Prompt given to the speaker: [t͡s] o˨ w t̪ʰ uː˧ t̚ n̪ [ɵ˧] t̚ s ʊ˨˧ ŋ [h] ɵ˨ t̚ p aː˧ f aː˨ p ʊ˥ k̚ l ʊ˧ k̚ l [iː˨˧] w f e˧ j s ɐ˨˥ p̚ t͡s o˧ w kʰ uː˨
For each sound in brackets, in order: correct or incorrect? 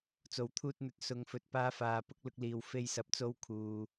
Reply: correct, incorrect, incorrect, incorrect

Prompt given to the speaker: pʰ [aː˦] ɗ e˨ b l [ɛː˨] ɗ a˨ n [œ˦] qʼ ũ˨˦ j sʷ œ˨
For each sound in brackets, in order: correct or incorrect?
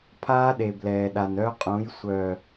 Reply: correct, correct, correct

